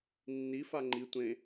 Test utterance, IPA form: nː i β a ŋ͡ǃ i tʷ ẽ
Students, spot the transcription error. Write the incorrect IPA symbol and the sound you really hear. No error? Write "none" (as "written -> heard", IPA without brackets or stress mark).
β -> f